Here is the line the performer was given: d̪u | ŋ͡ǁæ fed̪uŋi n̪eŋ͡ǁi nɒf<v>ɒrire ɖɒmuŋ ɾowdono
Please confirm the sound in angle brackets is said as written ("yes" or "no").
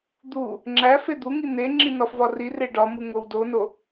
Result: yes